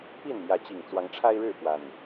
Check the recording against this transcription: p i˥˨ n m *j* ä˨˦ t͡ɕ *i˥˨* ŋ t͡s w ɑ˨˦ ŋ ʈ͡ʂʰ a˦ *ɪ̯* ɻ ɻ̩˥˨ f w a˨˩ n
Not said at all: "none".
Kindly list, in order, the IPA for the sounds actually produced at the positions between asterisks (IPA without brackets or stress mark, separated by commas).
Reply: j, i˨˩, ɪ̯